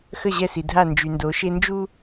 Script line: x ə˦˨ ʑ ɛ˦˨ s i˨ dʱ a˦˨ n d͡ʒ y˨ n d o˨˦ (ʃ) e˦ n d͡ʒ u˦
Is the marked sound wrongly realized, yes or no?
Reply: no